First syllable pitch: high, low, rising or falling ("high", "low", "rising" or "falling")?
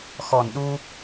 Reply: low